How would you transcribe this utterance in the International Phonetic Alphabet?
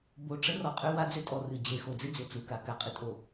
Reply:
b o˨ ʈ͡ʂ ə˦ r ɔ˨ qʼ ʏ˦ w a˦ d͡z ʏ˦ tʼ ɔ˨ r ɨ˨ d͡ʑ e˨ x o˨ d͡z ɪ˦ d͡z ʏ˨ t͡s u˨ k a˨ k a˨ qʼ ɪ˦ tʼ o˨

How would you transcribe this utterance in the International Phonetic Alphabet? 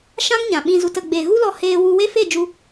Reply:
ʃ ã˦ ŋ ɲ ã˨ ɓ ĩ˧ z u˨ t ə˨ ɡ͡b e˨ ɣ u˦ l ɔ˧ h eː˧ w u˧ w e˦ f e˦˨ d͡ʒ u˧

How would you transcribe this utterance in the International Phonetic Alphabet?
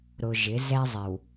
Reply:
ɾ ʊ˨ ʒ ɪ˨˦ z ɛ˦ zˤ ɪ˨ w

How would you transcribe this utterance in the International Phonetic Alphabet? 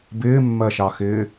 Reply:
b ɪː mː ɜ ʃ ɑ x ɪː

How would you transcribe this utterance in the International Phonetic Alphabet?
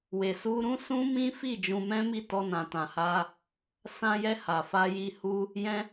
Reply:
w e˨ s u˧ ɾ ũ˦ s ũ˦ m ĩ˦ f i˦˨ d͡ʒ ũ˧ m ɛ̃˦ m i˦˨ t ɔ˧ n ã˨ t ã˨ h a˧ | s ã˧ j ɛ˧ h a˨ f a˧ j i˧ h u˦ | j ɛ̃˧

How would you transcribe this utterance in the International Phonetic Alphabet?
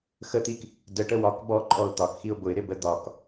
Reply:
x ə t̪ i k | d ə ʈ ə w ɒ k b ɔ ǃʼ ɔ ʊ̯ t̪ ɒ k x i ʊ̯ b ʊ ɪ̯ ɾ ɪ b ə d̪ ɒ k

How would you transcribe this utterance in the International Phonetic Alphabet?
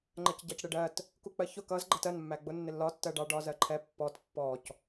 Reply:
ŋ͡ǃ ɜ c ɟ ɑ c ɽ ɪ ɖ ɜ t | k u k͡p ɜ ç ʊ k ʌ z ɡ͡ǃ ʌ t ɜ n mː æ ɡ͡b ʊ nː ɪ lː ɒ tː ɜ ɖ ɑ ɖ ɒ z ɜ ǃʰ ɛ pː ɔ t pː ɔ c

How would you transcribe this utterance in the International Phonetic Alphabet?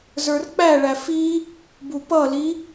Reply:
z ə˞ r k͡p æ ɭ æ f i | b u p ʌ l i

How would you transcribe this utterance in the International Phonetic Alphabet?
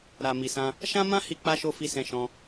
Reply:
ɾ a˨ m i˨ s ã˧ | ʃ ã˦ m ã˦ h i˧ k͡p a˧ ʃ o˧ f i˧ s ɛ̃˧ ʃ ɔ̃˧

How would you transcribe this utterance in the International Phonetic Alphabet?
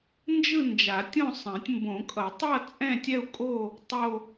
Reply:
n d͡ʒ ɯ˥˧ n d͡ʒ a˨˩˦ tʲ õ˥˧ sˤ ɛ̃˨˩˦ tʲ m b õ˨˩˦ kʼ ʌ˨˩˦ tˤ ʌ˥˧ t͡sʼ ɛ̃˥˧ tʲ ɛ˥˧ u̯ kʼ o˥˧ | tˤ o˥˧

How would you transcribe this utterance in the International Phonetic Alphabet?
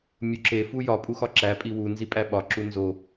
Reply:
mʲ u ǁ e f u j ɒ pʼ u x ɒ ǁ æ pʼ i w u n z i pʼ æ ɓ ɒ ǁ u n z o

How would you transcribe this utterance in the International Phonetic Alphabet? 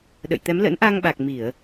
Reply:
ɗ ə̰˧˨ j t̪ ɛ˨˦ m l ə̰˧˥ n ʔ a˧ ŋ ɓ a˨˩ k̚ m i˧˩˨ ə̯

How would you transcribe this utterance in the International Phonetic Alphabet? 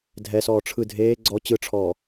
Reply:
dʱ ɛ s ɔː ʈ͡ʂʰ ɯ dʱ eː ɡ͡ǀ ɔ t͡ɕ ɯ ʈ͡ʂʰ ɔː

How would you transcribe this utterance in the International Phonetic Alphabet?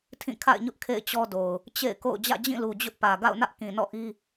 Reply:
tʰ ĩ˦˨ kʰ a̰˦˨ ɪ̯ ɲ ʊ˦ ʔ kʰ ḛ˦˨ ɪ̯ t͡ɕ ɔ˦ d o˨ ʊ̯ | t͡ɕ ḛ˦˨ ɪ̯ k o̰˦˨ ʊ̯ d͡ʑ ä̰˦˨ d͡ʑ ĩ˦˨ l u˨ d͡ʑ ʊ˦ ʔ p ä˨ ɡ a̰˦˨ ʊ̯ n ä˦ ʔ k ĩ˨ n ɔ̰˦˨ ʔ i˦

